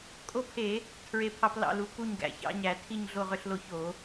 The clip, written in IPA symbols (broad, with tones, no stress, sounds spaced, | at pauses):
kʼ o˦ pʰ e˧˩˧ | tʰ ɹ e˥˨ pʰ ɑ˦ p l ɑ̰˥˨ l u˧˩˧ k u˥˨ ɲ ɡ æ̰˧˩˧ ç ɑ̰˦ ɲ æ˧˩˧ tʰ i˥˨ ɲ ɮ o˥˨ ʁ ø˦ ɬ l o˥˨ ç o˧˩˧